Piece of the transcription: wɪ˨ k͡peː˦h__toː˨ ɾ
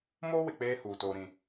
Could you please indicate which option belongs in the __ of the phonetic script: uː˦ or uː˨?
uː˨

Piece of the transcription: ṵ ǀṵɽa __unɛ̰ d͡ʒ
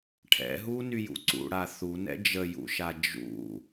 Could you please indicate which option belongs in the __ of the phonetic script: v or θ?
θ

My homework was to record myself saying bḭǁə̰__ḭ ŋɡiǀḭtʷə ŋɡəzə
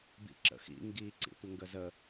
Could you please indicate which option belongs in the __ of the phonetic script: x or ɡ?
x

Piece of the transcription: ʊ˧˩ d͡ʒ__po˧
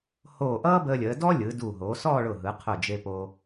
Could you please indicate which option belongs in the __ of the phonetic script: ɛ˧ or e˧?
e˧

